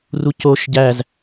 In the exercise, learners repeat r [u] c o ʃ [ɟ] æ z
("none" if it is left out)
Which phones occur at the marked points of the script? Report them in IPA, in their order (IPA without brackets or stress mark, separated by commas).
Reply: u, ɟ